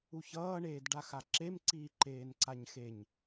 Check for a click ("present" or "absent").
present